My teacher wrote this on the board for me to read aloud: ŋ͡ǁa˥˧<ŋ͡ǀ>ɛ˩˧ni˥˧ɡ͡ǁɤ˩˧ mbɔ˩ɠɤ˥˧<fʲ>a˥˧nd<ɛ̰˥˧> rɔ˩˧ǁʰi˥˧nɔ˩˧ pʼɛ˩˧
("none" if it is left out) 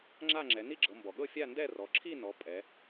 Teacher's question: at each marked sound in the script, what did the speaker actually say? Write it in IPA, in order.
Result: ŋ͡ǁ, fʲ, ɛ˥˧

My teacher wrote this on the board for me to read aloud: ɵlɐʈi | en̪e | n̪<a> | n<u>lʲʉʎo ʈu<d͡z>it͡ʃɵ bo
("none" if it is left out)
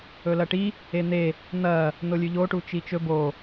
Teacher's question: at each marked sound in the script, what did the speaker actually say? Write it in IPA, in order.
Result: ɐ, o, t͡ʃ

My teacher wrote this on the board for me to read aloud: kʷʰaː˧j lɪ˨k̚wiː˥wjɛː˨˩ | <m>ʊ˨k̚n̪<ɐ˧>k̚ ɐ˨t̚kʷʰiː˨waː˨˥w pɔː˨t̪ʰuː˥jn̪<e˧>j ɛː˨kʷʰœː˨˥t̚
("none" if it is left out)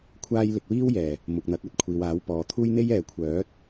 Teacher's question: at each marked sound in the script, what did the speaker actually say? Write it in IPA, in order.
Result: m, ɐ˨˥, e˥

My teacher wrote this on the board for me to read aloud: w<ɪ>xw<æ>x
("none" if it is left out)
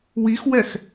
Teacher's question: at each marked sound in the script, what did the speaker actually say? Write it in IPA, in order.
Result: i, ɛ

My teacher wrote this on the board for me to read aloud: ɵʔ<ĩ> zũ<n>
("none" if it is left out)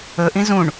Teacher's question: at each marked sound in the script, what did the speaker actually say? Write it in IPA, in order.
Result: ĩ, ɳ

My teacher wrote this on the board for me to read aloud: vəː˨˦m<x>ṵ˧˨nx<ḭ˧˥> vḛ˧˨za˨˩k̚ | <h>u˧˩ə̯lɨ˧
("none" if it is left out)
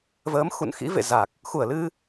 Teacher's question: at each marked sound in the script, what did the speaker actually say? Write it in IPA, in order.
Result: x, ḭ˧˥, x

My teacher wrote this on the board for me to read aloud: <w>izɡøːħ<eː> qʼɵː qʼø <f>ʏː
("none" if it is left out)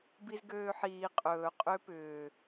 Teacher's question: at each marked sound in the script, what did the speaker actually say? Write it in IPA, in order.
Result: b, iː, p

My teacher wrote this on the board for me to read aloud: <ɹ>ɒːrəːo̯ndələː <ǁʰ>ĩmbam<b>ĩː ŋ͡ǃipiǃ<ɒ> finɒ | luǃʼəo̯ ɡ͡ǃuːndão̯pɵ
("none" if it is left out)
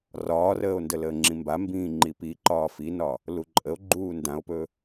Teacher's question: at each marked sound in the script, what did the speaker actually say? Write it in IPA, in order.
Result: r, ŋ͡ǁ, b, ɒː

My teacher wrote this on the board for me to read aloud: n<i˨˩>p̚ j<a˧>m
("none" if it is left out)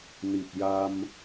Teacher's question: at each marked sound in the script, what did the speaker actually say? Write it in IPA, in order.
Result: i˨˩, a˧

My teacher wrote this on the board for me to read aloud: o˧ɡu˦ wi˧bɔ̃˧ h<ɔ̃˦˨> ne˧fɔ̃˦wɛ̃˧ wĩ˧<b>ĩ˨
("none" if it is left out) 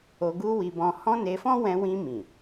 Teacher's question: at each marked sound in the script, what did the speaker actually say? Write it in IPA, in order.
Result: ɔ̃˦, m

